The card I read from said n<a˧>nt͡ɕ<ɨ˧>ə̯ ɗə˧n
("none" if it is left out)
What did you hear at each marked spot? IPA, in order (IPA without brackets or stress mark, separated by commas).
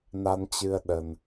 a˧, ɨ˧